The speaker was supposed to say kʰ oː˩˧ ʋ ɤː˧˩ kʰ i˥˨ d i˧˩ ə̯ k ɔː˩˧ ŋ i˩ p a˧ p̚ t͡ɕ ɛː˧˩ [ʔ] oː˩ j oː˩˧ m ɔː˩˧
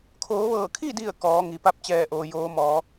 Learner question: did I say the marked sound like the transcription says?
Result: yes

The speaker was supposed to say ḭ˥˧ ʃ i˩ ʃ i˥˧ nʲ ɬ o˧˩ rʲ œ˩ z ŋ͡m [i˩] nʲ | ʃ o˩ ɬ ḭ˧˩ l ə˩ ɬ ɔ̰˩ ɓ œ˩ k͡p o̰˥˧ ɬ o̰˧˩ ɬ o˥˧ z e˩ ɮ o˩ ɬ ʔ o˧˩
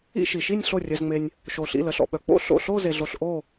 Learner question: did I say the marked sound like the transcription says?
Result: no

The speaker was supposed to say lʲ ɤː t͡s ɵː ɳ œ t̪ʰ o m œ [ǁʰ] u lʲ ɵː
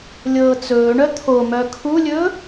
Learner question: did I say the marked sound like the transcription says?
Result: no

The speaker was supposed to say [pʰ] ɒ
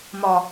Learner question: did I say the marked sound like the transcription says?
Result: no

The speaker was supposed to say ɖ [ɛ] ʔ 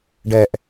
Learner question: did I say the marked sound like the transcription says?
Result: yes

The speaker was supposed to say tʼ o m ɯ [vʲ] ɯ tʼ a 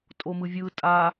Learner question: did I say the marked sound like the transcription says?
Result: yes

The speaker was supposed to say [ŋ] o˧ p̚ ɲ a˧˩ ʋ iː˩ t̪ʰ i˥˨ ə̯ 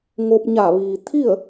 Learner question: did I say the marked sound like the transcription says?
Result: yes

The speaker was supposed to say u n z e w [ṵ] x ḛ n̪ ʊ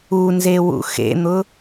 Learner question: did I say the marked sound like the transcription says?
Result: yes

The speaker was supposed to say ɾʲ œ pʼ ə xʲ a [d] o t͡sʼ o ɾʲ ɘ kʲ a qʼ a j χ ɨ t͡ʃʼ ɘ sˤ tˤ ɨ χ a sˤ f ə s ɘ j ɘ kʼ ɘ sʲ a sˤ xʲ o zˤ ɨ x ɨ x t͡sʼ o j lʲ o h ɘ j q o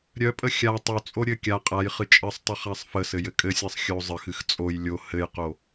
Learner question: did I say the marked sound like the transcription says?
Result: no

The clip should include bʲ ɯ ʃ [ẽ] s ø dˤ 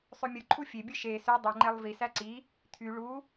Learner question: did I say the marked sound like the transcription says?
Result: no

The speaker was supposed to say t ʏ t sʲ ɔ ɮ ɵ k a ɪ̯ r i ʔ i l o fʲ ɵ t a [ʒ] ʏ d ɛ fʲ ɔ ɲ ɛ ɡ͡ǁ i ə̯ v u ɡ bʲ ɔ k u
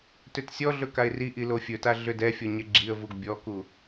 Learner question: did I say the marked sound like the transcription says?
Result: no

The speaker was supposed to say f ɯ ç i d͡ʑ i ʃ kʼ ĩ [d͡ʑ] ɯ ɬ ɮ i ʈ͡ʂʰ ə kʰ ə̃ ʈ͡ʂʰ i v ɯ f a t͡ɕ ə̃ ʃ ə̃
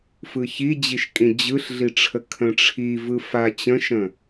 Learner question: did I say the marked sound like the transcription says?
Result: yes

